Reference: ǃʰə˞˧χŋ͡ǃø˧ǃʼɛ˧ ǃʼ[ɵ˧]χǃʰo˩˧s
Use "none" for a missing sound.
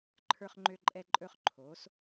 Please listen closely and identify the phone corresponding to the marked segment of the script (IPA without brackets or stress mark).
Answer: ɵ˧